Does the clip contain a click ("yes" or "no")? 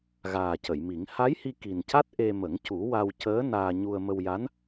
no